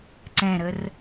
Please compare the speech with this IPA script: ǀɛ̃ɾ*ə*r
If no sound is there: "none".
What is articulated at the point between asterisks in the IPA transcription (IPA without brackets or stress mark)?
ə